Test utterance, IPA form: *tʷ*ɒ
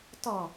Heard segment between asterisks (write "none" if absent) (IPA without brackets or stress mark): t